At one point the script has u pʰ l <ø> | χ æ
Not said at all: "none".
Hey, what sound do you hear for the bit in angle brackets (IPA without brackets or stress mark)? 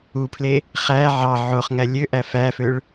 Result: e